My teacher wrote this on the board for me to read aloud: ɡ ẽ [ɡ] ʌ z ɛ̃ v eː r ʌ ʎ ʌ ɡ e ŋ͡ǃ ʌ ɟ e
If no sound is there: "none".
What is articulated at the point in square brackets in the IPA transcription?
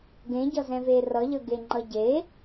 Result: ɟ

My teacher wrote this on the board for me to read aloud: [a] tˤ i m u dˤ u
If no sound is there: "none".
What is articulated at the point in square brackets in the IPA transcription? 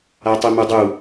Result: a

